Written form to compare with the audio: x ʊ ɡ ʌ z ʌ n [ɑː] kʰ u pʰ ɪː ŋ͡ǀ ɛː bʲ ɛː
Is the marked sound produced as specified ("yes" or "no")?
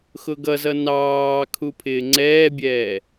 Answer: yes